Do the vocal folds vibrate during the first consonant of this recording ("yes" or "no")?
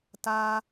no